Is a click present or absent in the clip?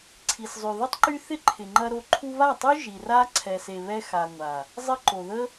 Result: present